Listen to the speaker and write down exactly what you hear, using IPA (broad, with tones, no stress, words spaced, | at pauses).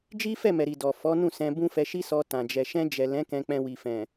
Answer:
d͡ʒi˦fɛ˦˨mɛ˨ɾi˨ dɔ˨ fɔ˨˦nũ˦˨sɛ̃˧ bũ˦fɛ˧ʃi˦sɔ˧ tã˨ d͡ʒɛ˨ʃɛ̃˧ d͡ʒɛ˨lɛ̃˨˦ kɛ̃˧k͡pɛ̃˧wi˨fɛ̃˨